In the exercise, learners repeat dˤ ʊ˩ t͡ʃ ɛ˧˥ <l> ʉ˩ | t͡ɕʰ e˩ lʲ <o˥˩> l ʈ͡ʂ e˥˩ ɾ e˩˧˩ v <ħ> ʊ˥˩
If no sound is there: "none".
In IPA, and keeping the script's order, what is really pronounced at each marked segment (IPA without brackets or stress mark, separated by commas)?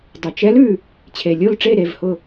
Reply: l, o˥˩, h